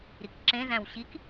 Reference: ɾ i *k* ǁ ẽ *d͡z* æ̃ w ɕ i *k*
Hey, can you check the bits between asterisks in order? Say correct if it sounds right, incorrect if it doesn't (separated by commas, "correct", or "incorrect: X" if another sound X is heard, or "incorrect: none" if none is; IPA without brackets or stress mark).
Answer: correct, incorrect: z, correct